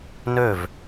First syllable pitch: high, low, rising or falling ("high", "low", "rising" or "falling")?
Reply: falling